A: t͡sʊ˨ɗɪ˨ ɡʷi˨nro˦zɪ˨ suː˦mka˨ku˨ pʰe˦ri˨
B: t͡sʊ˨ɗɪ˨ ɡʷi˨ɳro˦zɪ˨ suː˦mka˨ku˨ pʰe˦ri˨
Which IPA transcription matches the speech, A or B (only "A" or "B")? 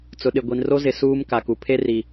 A